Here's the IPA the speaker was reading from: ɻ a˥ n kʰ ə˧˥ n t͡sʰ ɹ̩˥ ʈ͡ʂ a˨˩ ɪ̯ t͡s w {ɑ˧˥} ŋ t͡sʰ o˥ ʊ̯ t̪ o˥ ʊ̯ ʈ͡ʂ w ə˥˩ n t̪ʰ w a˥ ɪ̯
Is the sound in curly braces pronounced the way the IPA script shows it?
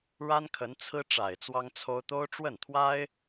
no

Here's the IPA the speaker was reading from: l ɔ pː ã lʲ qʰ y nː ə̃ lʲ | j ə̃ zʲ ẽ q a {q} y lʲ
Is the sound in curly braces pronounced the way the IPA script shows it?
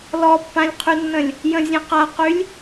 yes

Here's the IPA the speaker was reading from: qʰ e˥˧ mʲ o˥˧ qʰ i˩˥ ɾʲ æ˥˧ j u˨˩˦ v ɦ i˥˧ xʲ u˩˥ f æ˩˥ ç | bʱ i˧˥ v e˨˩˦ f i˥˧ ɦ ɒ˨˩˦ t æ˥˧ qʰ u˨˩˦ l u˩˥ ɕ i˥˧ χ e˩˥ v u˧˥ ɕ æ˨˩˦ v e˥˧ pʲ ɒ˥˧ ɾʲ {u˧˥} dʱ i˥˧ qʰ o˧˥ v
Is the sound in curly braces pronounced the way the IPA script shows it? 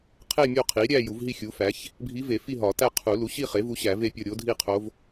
no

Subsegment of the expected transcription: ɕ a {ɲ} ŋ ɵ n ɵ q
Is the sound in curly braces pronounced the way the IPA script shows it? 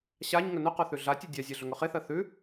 yes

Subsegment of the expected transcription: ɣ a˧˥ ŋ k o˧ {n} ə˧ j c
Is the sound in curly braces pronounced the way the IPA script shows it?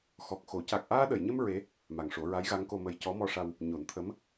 no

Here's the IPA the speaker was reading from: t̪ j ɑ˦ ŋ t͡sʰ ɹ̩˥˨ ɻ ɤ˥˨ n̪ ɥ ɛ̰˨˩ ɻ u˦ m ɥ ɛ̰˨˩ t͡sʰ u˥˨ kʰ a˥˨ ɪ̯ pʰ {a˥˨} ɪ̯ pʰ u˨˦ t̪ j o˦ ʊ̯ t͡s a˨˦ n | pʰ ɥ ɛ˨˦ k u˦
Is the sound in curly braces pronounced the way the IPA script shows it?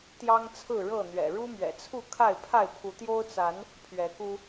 yes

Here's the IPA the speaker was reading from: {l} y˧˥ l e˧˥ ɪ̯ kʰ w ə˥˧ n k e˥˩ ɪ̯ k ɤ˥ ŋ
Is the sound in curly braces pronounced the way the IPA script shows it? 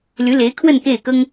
yes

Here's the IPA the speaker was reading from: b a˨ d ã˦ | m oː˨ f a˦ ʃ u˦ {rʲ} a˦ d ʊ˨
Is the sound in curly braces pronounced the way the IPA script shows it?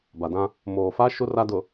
no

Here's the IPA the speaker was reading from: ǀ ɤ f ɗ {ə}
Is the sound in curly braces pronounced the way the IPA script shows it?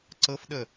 yes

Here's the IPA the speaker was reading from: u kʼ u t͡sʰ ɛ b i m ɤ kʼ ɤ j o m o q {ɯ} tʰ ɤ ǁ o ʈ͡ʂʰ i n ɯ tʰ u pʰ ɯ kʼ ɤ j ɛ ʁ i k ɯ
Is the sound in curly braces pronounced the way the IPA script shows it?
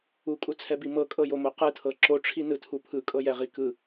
yes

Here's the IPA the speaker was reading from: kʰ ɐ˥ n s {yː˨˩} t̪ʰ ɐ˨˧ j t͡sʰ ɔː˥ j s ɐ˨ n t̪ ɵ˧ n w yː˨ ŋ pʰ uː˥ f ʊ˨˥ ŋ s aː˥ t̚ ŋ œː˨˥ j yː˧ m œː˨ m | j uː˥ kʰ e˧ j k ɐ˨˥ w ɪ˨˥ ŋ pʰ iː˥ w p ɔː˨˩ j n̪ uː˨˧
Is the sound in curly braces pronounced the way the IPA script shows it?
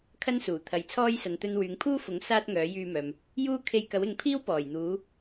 no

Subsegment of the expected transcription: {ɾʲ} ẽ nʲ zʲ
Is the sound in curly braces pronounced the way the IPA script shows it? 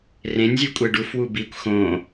no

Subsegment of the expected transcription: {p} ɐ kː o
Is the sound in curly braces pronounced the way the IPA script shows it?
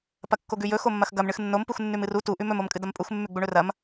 yes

